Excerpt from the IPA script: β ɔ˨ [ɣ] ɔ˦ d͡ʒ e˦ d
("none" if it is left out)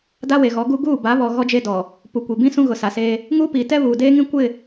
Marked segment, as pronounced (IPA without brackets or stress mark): ɣ